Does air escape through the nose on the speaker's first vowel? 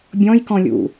yes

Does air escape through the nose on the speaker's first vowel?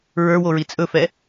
no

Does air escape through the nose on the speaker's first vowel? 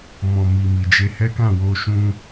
yes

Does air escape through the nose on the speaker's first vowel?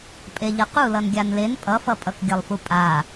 no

